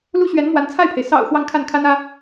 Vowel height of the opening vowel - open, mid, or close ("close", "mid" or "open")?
close